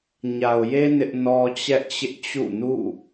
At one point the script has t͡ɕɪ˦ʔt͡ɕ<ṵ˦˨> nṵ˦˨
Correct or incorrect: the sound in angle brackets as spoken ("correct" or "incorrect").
correct